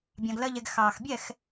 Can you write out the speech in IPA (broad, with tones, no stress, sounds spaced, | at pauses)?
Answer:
bʲ ɑ̃˧ ɡ l ɜ˦ ʎ ɛ˧ ɡ x ɑː˨ x bʲ ɛ˦˨ x